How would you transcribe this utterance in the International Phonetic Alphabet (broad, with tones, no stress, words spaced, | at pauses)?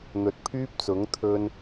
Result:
n̪ɵ˨t̚pʰyː˧p̚t͡sʊ˨˧ŋ t̪ʰɵ˧n